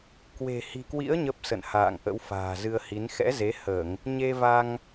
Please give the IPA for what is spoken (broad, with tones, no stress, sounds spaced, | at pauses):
k w e̤˨˩ h i̤˨˩ k w ḭ˧˥ ə̯ ɲ ə˦˥ p̚ s ə̰˧˨ n h a̰ː˧˨ ŋ ʔ ə̰˧˥ w f a̤ː˨˩ z ɨ˧ ə̯ h i˨˦ n x ɛ̰˧˥ z e˨˦ h əː˧˩˨ ŋ | ɲ e˧ v a˧ ŋ